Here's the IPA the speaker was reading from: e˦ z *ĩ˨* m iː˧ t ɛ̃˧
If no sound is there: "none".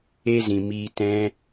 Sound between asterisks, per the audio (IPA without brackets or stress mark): ĩ˨